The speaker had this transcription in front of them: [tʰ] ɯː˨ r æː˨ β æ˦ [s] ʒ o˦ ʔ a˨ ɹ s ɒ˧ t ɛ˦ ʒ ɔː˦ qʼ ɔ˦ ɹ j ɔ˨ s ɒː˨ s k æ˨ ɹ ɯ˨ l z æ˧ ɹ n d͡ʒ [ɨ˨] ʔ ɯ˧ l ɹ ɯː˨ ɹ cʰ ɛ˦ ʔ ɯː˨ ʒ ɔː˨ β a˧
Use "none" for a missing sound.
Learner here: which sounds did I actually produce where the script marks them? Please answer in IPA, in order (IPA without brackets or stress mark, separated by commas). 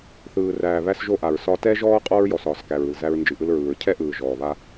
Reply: θ, s, ɨ˨